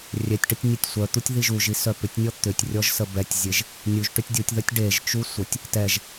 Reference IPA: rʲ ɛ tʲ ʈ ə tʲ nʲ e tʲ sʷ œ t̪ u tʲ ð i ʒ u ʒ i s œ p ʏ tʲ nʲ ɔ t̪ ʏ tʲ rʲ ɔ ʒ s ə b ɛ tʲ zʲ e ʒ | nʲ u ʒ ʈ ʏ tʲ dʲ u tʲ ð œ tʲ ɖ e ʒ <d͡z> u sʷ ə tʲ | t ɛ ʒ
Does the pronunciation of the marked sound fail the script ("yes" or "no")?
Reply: yes